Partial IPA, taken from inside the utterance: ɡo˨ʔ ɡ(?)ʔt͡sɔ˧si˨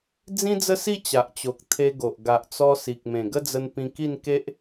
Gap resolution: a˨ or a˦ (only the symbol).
a˨